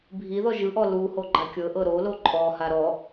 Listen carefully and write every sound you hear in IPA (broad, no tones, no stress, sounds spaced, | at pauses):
bʱ i ð ɔ ʒ ɯ ʔ ɔ l u h o ɡ͡ǃ a kʲ ɤ ʔ ɤ ɾ o l o ǃʼ ɔ h a ɾ ɔ